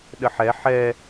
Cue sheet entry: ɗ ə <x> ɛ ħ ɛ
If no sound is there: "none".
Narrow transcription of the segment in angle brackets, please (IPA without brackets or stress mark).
ħ